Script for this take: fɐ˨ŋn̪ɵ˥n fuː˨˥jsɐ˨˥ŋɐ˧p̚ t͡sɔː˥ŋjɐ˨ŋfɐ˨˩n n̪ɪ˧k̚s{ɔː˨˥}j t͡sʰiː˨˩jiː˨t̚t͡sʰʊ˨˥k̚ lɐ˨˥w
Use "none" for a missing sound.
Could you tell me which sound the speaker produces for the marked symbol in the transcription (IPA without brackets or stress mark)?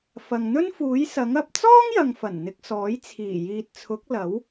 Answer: ɔː˨˥